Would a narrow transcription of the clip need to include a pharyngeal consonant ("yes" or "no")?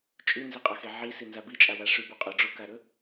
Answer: yes